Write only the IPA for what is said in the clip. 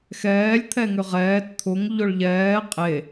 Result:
xɛːlʲ t̪ʰɛŋʏʁɛːt t̪ʰʊŋ ʎʊɭʎɛː qʼe

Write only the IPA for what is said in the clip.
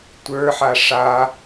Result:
tʷə˞ħa ʂa

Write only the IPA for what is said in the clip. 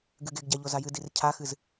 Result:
ɡɨɡeɡɟa ʎozajɨdir cʰaxɨz

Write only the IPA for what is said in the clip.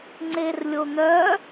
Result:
ŋ͡ǀerlʲon̪œ

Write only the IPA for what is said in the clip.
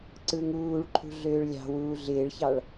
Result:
ǀɯŋuːɭǃʰṳ ɮøːɭlʲɑ̤wuː ɮɪːɭçɑɭ

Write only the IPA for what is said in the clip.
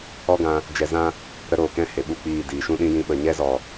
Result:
ɔ˦ɡã˧ | d͡ʒɛ˧zã˦ | ɾə˧ɾoː˨kɛ̃˧ he˨ɓu˦˨k͡piː˦˨ diː˨ʃũ˦ɗĩ˦ jĩ˧ ɓə˨ɲɛ˦zɔ˨

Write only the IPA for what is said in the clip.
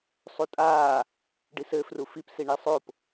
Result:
sˤutʼaː | ɖisɘ frufip siɳisˤop

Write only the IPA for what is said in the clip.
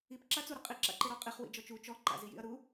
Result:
ip ǁat͡su ɾəqʼi ǁa̰ǃeɾɔqʼiχ wḭd͡ʒɔt͡ʃu t͡ʃɔ ǃa̰zijḭɐ̯ɾu

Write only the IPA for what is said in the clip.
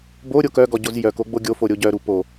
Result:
bo ɾʲokœɡɔ ɟozjœko ɡ͡boɡʲofo ɾʲoɟœɾu po

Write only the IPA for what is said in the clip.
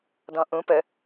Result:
dɔ̃ʔũ pə

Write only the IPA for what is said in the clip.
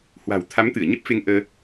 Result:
hwa̤˨˩wt̪ʰa˨˦mt̪ɨ˧˩ə̯ ɲə˦˥p̚fe˧ŋ ʔəː˧

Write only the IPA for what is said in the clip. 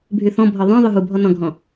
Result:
bʱyθɔ̃bʱɔ ðˤœ̃ ðˤyɦubʱɔ nɔ̃ɡʱɔ̃

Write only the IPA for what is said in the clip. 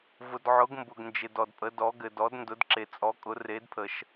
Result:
vʊ˨dʕʊ˨˦ɡ mbʊ˨ɡnd͡ʒɪ˨ dɔ˨dpʼə˨˦dɔ˨˦ ɡɘ˨dɔ˨˦d ndʊ˨˦dǁe˨ t͡sʼɔ˨˦kʼʊ˨˦ re˨˦dpʰə˨ʃ

